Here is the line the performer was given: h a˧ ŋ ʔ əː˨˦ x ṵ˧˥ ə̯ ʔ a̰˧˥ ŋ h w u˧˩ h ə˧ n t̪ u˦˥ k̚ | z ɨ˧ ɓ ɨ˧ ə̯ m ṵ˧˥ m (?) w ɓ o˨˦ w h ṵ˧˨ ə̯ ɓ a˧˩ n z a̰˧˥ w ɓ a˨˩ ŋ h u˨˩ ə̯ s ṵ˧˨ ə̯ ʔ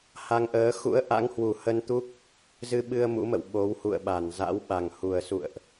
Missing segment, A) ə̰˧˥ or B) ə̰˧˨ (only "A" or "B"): B